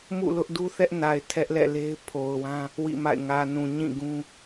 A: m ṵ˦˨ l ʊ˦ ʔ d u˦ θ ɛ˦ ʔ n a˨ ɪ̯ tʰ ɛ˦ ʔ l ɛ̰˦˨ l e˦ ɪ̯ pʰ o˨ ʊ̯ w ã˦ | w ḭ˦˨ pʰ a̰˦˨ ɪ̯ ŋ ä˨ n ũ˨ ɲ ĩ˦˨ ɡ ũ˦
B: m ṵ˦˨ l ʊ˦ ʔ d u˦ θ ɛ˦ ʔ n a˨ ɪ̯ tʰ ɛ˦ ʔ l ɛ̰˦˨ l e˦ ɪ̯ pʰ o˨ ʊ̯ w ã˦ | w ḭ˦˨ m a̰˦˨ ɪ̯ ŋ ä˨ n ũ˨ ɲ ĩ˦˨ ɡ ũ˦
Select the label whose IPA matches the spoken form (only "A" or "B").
B